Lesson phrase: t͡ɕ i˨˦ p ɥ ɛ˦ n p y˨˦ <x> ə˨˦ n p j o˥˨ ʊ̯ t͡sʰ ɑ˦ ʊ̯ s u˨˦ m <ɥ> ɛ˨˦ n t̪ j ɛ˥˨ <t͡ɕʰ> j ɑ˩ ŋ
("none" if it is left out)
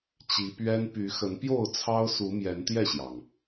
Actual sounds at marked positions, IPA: x, j, ɕ

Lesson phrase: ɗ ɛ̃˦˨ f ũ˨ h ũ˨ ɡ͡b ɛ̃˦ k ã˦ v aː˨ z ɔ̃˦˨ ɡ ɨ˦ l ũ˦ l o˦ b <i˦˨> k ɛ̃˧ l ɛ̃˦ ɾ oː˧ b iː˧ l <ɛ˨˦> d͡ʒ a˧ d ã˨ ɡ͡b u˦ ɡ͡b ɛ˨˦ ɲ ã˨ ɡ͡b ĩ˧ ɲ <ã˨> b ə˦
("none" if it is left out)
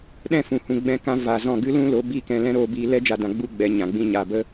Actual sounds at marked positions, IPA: i˦˨, ɛ˦, a˨

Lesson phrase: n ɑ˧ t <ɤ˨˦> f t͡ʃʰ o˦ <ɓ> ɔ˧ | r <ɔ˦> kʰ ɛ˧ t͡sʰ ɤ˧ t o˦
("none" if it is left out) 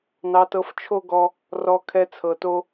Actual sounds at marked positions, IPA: ɤ˧, ɡ, ɔ˧

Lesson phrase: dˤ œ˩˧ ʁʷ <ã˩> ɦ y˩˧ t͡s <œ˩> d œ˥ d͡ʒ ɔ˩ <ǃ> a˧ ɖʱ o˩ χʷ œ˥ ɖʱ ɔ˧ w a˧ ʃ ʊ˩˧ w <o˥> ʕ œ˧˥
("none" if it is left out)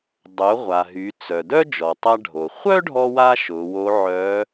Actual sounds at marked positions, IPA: a˩, œ˩, tˤ, o˧˥

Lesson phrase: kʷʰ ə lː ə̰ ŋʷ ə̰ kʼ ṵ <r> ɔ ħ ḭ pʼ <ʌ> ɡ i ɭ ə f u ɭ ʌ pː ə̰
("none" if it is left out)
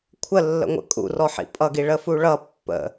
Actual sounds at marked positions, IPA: r, ʌ

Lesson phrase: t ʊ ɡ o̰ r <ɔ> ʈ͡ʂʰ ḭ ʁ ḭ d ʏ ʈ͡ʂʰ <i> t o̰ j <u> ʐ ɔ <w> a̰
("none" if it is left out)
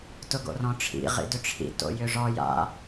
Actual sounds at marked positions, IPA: ɔ̃, ḭ, ʏ, j

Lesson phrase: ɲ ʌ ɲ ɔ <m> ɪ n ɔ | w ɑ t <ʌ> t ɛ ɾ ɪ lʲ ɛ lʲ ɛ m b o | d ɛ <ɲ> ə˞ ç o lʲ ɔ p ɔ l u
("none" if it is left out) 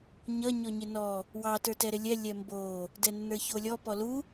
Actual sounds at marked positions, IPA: ɲ, ə˞, nː

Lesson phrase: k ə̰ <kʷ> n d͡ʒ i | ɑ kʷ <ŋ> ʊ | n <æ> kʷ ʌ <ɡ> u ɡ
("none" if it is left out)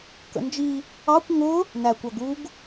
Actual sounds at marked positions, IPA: none, ŋ, æ, ɡ

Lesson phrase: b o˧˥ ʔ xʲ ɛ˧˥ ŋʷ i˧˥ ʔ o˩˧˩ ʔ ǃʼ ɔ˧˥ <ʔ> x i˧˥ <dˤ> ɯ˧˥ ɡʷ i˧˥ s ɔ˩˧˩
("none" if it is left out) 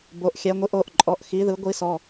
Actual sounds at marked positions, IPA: ʔ, ð

